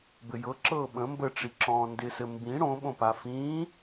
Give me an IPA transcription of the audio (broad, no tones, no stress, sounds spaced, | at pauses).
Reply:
b ɘ j ɤ ǁ ɤː ɓ ə̃ m b ə ʈ͡ʂ i ǁ ɔ̃ː n d ɪ s ɘ m b ĩ ɽ õ ɓ õ p a f ĩː